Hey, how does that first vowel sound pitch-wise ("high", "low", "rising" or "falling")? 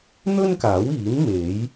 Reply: high